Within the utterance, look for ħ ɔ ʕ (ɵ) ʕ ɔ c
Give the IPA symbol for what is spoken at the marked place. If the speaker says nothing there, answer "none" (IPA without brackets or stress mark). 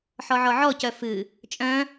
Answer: ɔ